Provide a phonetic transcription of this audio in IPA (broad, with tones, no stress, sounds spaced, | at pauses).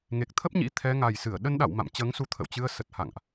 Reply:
ŋ e˨˩ k̚ t̪ʰ ə˦˥ p̚ ɲ ḭ˧˥ t̪ʰ ɛ˨˦ ŋ a˨˩ j s ɨ˧˩ ə̯ ɗ ə˧ n ɗ a̰˧˨ w m a̰˧˨ m t͡ɕ əː˨˦ ŋ s u˨˦ t̪ʰ ə̰˧˨ w t͡ɕ ɨ˧ ə̯ s ə˨˩ t̚ h a̰˧˨ ŋ ʔ